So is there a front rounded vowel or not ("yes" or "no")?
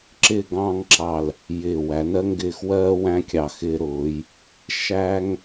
no